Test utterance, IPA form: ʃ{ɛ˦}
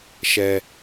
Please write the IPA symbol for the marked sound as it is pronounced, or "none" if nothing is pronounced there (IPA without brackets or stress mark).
ɛ˦